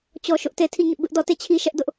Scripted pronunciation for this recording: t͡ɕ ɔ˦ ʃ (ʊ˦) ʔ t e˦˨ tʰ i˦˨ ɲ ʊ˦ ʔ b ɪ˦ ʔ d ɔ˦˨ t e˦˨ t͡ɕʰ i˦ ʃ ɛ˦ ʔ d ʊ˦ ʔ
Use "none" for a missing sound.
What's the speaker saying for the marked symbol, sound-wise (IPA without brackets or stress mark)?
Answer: ʊ˦